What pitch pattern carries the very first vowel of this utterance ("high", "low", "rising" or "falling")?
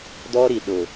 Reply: high